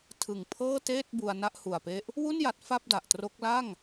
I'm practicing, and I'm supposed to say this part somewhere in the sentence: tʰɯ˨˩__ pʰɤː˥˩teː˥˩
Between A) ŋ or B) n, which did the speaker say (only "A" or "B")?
A